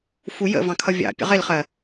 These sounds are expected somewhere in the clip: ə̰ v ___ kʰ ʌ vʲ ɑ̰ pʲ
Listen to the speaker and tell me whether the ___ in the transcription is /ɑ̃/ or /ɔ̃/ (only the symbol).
ɑ̃